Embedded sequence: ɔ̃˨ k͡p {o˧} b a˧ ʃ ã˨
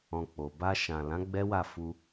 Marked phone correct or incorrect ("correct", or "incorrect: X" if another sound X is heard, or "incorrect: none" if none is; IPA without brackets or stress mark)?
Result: incorrect: o˨